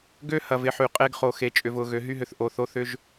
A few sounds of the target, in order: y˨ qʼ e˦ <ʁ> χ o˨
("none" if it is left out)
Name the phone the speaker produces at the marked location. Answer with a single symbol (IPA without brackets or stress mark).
ɡ